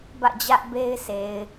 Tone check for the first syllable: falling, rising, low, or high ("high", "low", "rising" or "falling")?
falling